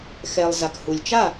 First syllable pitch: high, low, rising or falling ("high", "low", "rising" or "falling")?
low